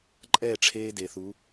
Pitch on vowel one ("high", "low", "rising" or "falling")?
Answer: falling